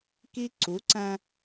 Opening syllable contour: high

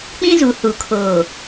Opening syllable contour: high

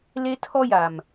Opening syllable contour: high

